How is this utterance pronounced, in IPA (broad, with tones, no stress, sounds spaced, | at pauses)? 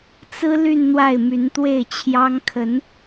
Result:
t͡s ɹ̩˥ l y˥˧ n n̪ w a˥˩ ɪ̯ m y˧˥ n t̪ w e˥˩ ɪ̯ t͡ɕʰ j ɑ˥ ŋ kʰ ə˧˥ n